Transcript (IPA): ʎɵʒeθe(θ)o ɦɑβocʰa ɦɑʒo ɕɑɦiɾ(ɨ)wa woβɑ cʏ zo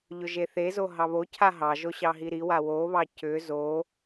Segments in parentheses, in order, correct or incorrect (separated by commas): incorrect, incorrect